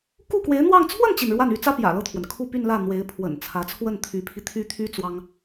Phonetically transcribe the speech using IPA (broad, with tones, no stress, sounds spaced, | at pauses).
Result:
k u˥˩ k w e˧˥ ɪ̯ n̪ w ɑ˥˧ ŋ t͡sʰ w ə˥˩ n t͡ɕ i˩ n ɻ w a˥˩ n y˧˥ t͡s ä˥ p j ä̰˨˩ l ɤ˥˩ t̪ʰ w ə˩ n kʰ u˥˧ p y˥˧ n l ä˥˩ n̪ w e˧˥ ɪ̯ pʰ w ə̰˨˩ n t͡sʰ ä˧˥ t͡sʰ w ə˥˩ n t̪ʰ y˧˥ pʰ i˧ t̪ʰ y˥˩ t̪ʰ y˥ t͡s w ɑ˥ ŋ